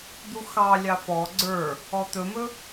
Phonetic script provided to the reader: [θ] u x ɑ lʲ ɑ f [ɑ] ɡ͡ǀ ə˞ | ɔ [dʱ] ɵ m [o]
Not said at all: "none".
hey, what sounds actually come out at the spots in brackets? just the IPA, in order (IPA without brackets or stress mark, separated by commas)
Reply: d̪, ɔ, t̪, ɵ